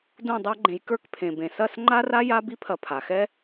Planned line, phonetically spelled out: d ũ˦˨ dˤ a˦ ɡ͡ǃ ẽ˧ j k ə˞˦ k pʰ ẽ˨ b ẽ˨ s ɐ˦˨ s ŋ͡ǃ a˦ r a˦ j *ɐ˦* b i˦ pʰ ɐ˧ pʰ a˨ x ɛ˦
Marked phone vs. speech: incorrect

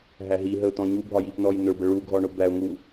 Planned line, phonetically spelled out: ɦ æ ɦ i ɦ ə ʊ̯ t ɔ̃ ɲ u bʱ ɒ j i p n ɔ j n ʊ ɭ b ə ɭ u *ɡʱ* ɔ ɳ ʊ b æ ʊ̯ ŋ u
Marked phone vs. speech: correct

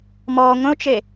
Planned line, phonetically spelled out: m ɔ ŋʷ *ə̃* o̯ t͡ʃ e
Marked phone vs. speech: correct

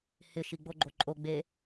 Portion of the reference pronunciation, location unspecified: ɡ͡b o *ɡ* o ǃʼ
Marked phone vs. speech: incorrect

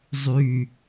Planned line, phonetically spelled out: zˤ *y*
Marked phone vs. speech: correct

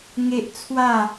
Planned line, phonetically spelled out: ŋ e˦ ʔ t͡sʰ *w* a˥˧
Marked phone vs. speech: correct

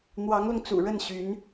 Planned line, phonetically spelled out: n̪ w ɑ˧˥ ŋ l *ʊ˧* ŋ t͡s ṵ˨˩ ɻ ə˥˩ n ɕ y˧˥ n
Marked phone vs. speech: correct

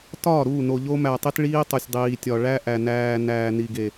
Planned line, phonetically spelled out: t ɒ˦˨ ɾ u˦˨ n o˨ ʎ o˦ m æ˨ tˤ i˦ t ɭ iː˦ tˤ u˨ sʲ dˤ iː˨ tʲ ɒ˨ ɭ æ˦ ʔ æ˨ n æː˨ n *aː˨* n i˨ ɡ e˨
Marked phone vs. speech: incorrect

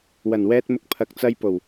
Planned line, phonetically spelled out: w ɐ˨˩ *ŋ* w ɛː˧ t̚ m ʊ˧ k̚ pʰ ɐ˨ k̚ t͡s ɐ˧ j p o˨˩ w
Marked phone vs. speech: incorrect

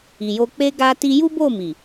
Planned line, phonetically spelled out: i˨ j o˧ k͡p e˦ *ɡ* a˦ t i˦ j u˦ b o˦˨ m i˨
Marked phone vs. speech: correct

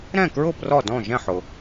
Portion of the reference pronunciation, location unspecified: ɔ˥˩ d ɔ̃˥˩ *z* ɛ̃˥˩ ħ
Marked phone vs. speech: incorrect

